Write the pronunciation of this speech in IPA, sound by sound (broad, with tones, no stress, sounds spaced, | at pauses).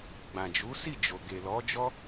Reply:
ɡ͡b ã˨ d͡ʒ u˨˦ s i˦˨ d͡ʒ o˨ ɡ e˨ l ɔ˨˦ d͡ʒ ɔ˦